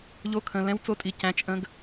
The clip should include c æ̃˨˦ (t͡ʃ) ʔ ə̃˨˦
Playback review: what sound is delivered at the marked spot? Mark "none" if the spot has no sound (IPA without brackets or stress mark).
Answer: t͡ʃ